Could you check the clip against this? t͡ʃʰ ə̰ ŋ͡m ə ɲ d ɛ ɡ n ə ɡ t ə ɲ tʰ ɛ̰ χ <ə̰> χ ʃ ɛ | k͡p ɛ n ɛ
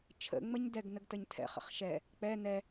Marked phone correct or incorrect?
correct